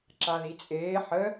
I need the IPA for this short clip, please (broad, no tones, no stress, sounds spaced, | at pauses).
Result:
ǁ a ð i t͡sʼ eː ħ ə